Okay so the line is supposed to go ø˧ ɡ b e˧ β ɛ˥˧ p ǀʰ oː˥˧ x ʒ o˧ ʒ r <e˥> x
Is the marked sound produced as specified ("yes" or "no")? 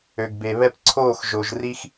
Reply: no